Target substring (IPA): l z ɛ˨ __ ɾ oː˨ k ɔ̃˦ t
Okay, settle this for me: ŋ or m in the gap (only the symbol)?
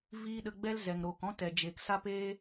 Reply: ŋ